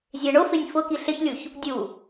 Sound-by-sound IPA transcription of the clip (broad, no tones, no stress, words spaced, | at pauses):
zʲeɳʊfɪnʲ fʊ kiɬɪçlʲuç | dʲu